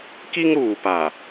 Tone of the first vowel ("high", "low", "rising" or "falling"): high